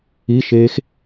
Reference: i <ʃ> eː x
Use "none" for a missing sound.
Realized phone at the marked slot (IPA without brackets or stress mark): ʃ